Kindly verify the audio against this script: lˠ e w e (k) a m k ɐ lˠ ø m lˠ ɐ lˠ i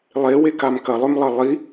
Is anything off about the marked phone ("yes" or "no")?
no